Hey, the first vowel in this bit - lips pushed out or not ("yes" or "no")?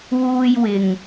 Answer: yes